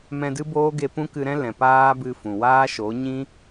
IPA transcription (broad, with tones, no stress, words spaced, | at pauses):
mɛ̃˧dɨ˦boː˦ɡe˧ pũ˦kɨ˧ɾɛ̃˦lɛ̃˨ paː˦ bɨ˧fũ˨ waː˦ʃo˨˦ ɲĩ˦